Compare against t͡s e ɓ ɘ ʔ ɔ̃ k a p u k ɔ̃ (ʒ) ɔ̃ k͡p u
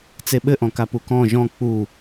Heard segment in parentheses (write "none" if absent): ʒ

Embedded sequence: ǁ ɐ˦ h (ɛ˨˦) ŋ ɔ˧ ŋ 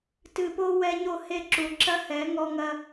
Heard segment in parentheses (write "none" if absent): ɛ˨˦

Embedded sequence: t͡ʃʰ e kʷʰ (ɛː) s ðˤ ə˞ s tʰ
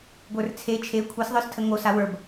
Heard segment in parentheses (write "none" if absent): ɛ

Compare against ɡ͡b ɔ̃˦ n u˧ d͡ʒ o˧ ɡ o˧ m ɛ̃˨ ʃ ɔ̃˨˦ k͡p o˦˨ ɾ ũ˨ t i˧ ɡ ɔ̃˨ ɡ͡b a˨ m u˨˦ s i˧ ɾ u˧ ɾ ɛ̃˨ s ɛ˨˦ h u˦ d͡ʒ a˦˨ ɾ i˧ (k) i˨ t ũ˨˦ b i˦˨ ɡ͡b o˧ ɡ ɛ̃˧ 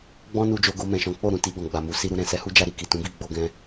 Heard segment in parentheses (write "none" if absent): k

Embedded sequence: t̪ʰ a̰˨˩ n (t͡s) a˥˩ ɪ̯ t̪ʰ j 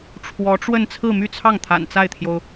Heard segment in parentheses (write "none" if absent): t͡s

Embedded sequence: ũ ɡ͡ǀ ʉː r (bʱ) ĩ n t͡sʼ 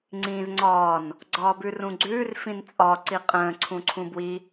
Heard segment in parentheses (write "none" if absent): f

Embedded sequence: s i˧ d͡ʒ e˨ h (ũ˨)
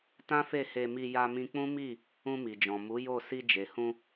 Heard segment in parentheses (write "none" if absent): ũ˧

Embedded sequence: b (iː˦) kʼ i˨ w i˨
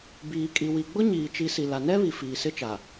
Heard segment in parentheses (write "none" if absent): iː˨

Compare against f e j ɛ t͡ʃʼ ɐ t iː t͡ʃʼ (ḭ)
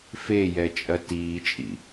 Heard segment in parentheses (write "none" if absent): ḭ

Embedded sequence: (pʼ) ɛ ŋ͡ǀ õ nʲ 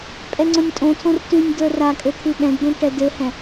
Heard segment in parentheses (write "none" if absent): pʼ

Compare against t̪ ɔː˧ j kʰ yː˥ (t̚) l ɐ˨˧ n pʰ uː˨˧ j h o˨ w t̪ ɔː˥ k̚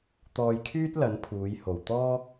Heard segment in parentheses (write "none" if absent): t̚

